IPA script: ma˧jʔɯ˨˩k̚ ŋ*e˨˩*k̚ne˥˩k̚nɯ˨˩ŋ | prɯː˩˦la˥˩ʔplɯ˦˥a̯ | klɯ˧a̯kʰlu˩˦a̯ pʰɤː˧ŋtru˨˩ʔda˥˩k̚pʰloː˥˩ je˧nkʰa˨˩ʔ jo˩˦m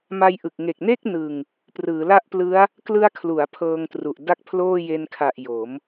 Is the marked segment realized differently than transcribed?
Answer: no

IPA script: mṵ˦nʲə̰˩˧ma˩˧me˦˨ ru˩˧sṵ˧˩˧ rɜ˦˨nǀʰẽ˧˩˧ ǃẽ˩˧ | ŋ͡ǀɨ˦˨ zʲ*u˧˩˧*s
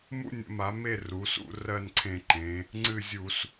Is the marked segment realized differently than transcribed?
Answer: no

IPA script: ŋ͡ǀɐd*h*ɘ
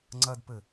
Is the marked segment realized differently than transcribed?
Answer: yes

